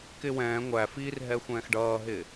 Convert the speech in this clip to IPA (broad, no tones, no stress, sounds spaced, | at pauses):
k ɪ w ɛ̃ː ŋʷ æ f iː r ɦ ɛ xʷ ɛ̃ː x ɖ ʌː ɦ ɪ